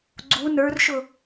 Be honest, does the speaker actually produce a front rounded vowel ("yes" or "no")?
no